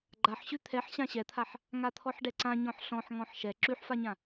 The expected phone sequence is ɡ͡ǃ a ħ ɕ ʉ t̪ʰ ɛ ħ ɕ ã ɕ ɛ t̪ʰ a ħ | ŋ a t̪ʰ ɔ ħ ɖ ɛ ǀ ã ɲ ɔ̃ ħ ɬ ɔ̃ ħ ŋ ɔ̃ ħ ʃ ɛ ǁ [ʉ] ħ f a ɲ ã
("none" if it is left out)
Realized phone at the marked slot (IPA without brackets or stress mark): ʉ